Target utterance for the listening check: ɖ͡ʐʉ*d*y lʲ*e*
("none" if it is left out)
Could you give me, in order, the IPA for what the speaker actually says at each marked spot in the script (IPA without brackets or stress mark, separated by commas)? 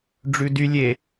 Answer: d, e